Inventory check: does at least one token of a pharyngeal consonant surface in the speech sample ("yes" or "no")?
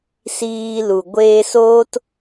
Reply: no